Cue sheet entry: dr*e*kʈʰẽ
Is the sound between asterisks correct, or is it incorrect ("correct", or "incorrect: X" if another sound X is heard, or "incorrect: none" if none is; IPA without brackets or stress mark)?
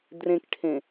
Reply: incorrect: ẽ